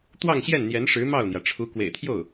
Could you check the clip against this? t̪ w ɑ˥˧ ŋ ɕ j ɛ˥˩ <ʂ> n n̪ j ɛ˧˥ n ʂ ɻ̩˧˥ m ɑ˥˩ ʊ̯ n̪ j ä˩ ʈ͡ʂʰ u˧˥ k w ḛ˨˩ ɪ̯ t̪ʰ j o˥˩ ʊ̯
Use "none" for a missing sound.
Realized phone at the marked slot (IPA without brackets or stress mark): none